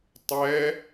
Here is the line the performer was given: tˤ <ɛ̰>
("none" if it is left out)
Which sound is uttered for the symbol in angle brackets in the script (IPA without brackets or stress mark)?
ɛ